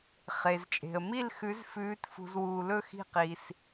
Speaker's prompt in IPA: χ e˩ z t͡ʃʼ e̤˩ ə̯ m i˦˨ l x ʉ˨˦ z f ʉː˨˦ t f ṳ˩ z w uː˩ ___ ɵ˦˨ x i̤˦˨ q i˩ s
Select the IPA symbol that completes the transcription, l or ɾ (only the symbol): l